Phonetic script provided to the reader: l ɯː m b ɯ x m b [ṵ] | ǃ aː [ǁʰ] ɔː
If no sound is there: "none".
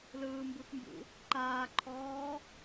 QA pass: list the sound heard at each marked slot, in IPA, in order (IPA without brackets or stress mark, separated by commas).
ṵ, ǃʰ